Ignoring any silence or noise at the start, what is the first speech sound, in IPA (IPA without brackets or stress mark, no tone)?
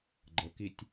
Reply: ɡ͡ǃ